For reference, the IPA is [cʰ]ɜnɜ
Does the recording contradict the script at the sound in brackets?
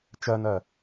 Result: yes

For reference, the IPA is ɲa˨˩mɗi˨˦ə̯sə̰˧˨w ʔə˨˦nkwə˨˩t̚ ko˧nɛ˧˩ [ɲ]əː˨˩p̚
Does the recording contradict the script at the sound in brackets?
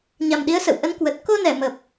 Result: yes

